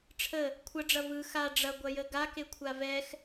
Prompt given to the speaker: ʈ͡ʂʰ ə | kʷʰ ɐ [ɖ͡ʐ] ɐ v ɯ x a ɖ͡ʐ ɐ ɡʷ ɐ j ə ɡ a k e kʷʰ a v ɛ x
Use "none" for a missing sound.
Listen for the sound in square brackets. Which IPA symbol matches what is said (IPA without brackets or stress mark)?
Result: ɖ͡ʐ